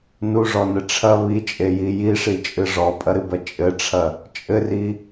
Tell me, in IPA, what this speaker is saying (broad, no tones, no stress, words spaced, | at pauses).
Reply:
nuʐɔnɘ ʈ͡ʂʰɐ βit͡ʃʼeji jiʂit͡ʃʼɨ ʐɔpʼɐɾɨbɐ t͡ʃʼɘʈ͡ʂʰɐ | t͡ʃʼɘri